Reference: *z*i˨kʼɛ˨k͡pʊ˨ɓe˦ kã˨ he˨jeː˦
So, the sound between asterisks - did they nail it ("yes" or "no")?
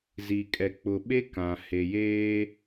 yes